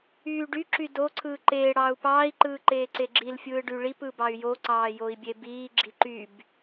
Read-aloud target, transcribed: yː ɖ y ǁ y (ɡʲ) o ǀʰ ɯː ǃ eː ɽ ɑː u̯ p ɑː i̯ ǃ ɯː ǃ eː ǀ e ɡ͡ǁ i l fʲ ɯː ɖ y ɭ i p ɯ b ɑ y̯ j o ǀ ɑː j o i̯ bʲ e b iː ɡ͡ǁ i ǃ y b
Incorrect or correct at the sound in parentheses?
incorrect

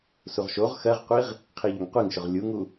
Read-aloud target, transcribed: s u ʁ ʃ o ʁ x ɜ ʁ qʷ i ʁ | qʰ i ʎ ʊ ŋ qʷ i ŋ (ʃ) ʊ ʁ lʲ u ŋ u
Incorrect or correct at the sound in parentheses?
correct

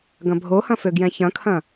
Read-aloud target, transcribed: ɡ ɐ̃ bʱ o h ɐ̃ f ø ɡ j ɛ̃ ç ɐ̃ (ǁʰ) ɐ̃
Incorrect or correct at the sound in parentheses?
incorrect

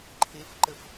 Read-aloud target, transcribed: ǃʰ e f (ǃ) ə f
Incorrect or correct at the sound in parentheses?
correct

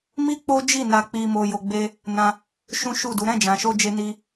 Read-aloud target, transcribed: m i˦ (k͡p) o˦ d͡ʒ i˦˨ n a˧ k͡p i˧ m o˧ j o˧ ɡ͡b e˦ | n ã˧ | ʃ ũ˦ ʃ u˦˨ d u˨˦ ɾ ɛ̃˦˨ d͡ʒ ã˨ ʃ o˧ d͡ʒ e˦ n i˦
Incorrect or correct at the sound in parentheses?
correct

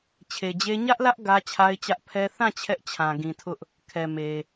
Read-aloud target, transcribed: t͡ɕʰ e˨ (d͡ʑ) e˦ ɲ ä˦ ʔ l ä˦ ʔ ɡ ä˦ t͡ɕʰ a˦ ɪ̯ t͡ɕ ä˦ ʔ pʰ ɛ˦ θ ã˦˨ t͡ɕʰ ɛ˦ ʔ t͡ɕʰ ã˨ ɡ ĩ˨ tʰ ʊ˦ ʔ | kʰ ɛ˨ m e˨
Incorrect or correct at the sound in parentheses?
correct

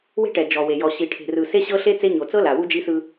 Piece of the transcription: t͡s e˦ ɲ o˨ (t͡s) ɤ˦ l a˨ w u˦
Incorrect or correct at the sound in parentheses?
correct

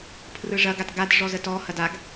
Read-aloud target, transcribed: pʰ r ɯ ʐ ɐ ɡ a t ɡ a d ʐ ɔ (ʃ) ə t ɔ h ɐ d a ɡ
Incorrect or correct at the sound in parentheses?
incorrect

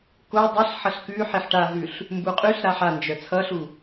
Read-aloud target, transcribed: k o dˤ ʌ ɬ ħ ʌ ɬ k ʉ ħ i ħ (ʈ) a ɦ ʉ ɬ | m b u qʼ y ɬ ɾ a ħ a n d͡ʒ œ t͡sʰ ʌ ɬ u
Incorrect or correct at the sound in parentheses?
correct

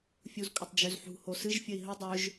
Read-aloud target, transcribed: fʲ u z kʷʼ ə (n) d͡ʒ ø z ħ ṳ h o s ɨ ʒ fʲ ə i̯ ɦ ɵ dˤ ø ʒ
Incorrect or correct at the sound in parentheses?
incorrect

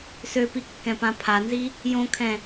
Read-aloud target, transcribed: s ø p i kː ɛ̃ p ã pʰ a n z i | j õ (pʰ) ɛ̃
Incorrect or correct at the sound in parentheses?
incorrect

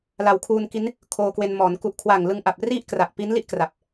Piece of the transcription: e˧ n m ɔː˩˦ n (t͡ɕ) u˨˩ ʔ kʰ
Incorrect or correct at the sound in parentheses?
incorrect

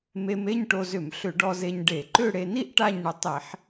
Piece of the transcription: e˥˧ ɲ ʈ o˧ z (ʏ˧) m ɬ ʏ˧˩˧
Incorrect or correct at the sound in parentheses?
incorrect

